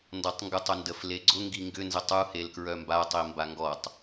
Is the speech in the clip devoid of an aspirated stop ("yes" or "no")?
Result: yes